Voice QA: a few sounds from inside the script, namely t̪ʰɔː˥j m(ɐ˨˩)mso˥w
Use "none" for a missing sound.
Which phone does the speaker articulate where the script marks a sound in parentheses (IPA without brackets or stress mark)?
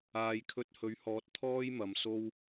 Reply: ɐ˨